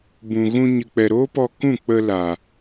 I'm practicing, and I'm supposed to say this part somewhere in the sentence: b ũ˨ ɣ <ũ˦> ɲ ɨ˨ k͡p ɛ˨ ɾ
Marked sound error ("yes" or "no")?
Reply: yes